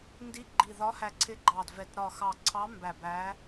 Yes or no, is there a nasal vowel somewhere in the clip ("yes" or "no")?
no